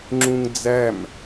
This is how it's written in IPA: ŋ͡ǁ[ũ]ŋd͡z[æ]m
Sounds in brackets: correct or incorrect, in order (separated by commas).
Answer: correct, correct